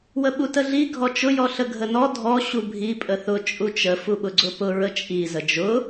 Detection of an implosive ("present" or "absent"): present